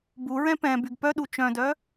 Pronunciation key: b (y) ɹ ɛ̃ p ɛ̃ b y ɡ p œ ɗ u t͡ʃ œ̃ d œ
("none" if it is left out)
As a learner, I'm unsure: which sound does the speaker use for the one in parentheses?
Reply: u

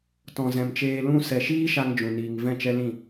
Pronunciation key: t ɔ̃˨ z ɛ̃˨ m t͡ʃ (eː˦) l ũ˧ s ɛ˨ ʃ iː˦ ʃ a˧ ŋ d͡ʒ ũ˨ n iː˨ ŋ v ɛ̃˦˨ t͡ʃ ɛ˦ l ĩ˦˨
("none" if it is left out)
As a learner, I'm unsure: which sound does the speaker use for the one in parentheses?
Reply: eː˧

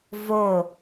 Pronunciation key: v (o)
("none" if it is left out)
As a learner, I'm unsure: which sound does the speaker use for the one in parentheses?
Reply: o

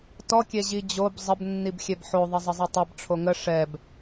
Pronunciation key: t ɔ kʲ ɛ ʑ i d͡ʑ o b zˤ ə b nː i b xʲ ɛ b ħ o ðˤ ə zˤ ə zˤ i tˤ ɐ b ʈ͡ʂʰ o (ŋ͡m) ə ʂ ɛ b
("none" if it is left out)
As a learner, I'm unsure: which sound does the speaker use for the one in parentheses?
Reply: ŋ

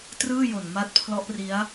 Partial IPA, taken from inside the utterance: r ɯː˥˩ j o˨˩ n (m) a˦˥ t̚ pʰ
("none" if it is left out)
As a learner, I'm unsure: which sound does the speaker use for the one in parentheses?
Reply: m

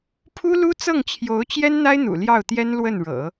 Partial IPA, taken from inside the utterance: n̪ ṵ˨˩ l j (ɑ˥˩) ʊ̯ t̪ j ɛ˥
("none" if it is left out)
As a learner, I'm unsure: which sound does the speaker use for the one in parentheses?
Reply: ɑ˥˩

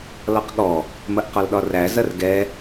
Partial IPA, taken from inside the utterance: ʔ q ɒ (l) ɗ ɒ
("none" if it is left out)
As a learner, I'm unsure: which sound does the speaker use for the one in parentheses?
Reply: l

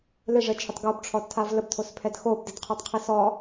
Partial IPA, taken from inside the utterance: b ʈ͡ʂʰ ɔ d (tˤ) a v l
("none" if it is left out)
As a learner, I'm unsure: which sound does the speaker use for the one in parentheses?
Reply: tʰ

